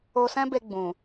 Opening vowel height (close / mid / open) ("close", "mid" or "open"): mid